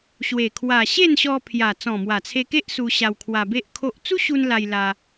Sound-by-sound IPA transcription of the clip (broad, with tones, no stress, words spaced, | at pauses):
ɕwe˨˩ kʰwa˨˩ɕe˥˧nɕɔ˧ pʰja˨˩ t͡sɔ̃˨˩mwa˨˩t͡sʰe˧ke˦ʔ su˧ɕa˧wkʰwa˧be˦ʔ kʰo˦ʔ t͡su˦ɕu˧n la˧jla˧